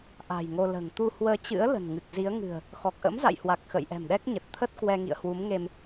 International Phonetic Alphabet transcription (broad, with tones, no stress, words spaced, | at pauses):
ʔa̤˨˩jŋo˧lə̤ː˨˩ŋ t̪u˧hwəː˨˦t͡ɕɨ̰˧˥ə̯ lə̤˨˩nŋɨ˨˩k̚zi˨˦ə̯ŋɨ̤˨˩ə̯ | xɔ˨˩k̚ʔə̰˧˥mza̰˧˨jhwa˨˩k̚ xə̰ː˧˨jʔɛ̤˨˩mɗɛ˦˥k̚ɲə˨˩t̚ t̪ʰə˦˥t̚kwɛ˧ŋḭ˧˨ə̯ hwu˨˦mŋe˧m